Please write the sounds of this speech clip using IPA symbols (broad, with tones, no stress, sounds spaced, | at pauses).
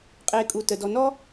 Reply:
qʼ eː˨ kʼ u˩ t ə˩ d ɔ˨ n ɔ˥